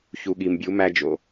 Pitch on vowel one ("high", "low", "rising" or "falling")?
low